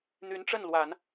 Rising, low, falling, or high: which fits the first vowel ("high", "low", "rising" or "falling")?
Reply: rising